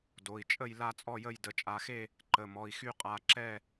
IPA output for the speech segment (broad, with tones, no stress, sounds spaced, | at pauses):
d o˩˧˩ i̯ t͡ʃʼ ə˥˨ j l a˥˨ t͡sʼ ɔ˥˨ j ə˥˨ j d ə˩˧˩ t͡ʃʼ a˩˧˩ x e˥˨ | ǃ ə˩˧˩ m ɔ˩˧˩ i̯ x y˥˨ qʼ a˩˧˩ ǁ ɛ˥˨